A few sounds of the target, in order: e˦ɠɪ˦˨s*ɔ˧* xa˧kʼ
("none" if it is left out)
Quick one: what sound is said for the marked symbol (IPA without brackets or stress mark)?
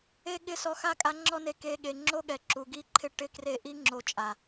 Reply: ɔ˧